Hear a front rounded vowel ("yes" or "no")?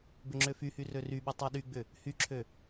yes